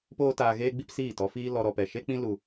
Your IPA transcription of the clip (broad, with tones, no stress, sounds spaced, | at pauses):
p oː˦ t aː˧ ɣ eː˦ ɡ͡b i˦ p s iː˦˨ t ɔ˧ f iː˦ l ɔ˧ ɾ ɔ˧ p ɛ˨ ʃ e˦ k͡p ĩ˦ l u˧